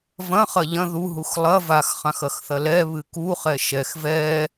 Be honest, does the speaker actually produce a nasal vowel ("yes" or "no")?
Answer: yes